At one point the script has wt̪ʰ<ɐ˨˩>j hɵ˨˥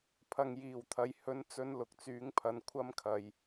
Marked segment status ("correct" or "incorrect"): incorrect